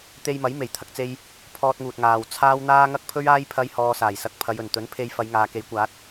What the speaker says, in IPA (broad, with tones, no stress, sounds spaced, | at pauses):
t̪ e˧ j m ɐ˨˥ j m e˨˩ j t̪ʰ ɐ˥ k̚ t͡s e˥ j | pʰ ɔː˧ t̚ ŋ uː˨ t̚ ŋ aː˨ w t͡sʰ aː˥ w n̪ aː˥ ŋ ɐ˥ k̚ pʰ ɵ˥ ɥ aː˥ j pʰ ɐ˥ j h ɔː˧ s aː˨˩ j s ɐ˧ k̚ pʰ ɐ˨˧ j ɵ˨˩ n t̪ ɵ˨˥ n pʰ e˧ j f ɐ˨˧ j ŋ aː˨ k e˨˥ j kʷ aː˨˥ t̚